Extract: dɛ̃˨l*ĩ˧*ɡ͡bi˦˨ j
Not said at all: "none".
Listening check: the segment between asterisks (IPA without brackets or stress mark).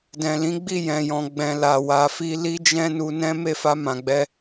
ĩ˨˦